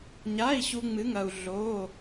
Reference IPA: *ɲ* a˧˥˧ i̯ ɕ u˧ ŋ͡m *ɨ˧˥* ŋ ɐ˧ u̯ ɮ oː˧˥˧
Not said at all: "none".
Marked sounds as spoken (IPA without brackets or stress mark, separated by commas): ɲ, ɨ˧˥